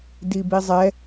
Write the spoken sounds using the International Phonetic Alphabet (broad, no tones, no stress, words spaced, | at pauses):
dibizˤɛ